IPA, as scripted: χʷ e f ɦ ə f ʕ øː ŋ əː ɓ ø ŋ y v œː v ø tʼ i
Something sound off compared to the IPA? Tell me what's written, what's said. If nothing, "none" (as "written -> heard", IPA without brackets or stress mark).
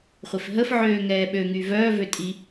əː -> ɛː